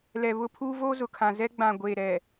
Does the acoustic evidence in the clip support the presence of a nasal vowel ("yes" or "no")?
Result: yes